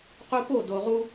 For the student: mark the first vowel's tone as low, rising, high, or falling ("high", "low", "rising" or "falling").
high